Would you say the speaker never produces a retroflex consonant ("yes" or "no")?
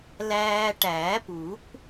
no